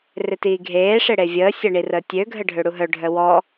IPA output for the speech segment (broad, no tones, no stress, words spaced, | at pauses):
rɪtiːɡʱeːʂɪ ɽevʲəːsʲɐ ɳirəːtʲøɡʱə ɖʱøɽuɦœɖʱœ wɔ